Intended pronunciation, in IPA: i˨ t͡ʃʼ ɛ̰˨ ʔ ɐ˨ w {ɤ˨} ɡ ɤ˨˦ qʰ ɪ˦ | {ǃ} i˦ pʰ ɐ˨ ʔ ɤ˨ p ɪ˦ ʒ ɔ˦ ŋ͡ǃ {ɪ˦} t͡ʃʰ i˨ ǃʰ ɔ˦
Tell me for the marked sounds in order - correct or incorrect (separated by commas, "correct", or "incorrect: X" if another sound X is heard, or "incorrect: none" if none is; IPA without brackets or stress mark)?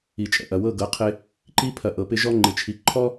incorrect: ɤ˦˨, correct, incorrect: ɪ˨